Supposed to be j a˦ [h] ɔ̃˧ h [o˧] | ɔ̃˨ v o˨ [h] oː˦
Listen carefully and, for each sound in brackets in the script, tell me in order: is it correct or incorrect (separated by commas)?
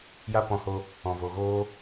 incorrect, correct, incorrect